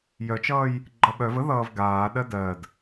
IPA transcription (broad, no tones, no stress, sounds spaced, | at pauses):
j œ t͡ʃ ʌː j | ɡ͡ǃ ʌ ɓ œ v ə ð ʌː v ɡ aː ɗ ɜ d ɜ d